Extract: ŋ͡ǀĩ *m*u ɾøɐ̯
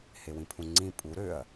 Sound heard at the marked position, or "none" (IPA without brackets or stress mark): pʼ